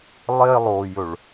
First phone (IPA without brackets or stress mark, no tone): lˠ